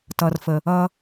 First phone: t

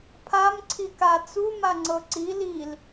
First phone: pʰ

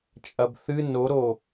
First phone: t͡ʃʼ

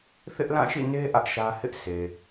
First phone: θ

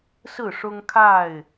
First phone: s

